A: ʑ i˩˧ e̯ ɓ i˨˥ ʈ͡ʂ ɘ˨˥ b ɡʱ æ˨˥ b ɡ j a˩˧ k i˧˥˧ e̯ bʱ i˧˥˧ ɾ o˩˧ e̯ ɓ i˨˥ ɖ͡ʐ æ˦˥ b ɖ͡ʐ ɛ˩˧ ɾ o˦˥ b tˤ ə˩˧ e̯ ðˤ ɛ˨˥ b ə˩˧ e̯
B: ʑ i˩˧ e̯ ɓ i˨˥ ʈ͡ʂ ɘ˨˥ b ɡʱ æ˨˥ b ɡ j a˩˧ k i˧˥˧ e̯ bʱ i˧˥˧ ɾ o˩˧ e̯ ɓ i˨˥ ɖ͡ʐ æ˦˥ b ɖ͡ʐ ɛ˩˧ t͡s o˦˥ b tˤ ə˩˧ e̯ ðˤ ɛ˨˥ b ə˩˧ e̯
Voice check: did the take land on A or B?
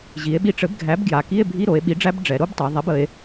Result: A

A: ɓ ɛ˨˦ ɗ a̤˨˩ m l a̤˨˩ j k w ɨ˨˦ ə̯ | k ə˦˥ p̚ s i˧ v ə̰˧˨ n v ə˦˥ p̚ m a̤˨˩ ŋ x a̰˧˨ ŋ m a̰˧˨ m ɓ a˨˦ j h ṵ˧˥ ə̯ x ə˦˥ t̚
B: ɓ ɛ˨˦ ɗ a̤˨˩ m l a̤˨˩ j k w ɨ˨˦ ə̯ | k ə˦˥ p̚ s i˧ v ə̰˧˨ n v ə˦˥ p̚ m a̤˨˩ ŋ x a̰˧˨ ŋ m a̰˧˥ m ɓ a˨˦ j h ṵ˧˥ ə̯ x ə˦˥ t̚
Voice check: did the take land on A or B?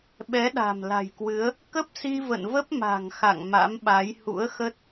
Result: B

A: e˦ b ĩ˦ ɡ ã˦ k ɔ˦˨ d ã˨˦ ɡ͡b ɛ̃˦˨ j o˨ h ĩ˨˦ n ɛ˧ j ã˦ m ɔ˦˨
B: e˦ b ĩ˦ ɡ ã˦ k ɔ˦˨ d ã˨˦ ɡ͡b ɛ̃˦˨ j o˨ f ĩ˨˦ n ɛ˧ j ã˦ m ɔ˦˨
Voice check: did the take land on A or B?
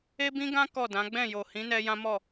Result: A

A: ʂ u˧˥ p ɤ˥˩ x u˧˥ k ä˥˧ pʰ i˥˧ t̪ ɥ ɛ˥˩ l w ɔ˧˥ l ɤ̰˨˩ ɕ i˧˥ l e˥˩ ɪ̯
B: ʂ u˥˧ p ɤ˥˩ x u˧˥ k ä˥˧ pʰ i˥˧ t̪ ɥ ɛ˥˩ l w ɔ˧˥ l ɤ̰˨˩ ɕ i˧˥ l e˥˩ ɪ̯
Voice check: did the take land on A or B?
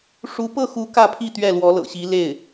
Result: A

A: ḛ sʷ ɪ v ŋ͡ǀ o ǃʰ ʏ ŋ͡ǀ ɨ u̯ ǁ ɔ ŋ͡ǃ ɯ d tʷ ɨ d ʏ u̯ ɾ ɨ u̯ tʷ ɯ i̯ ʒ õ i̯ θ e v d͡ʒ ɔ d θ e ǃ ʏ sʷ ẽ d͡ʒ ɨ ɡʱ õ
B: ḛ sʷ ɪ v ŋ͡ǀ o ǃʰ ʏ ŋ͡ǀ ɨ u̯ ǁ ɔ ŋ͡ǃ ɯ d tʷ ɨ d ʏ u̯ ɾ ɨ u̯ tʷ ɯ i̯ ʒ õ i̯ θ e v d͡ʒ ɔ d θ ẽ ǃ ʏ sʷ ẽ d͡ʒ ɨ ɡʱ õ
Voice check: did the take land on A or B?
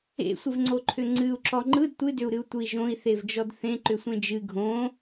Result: B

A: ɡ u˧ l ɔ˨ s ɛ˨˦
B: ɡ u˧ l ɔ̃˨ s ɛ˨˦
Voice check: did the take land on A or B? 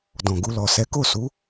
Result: A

